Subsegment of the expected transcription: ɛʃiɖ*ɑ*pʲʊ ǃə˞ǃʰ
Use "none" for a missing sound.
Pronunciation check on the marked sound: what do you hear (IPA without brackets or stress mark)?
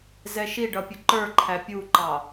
ʌ